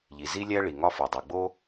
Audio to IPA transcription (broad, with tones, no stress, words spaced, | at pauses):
ʎi˩zi˥lʲæ˥ ɭi˩ŋɒ˦fo˩ dˤu˩ɡ͡bo˥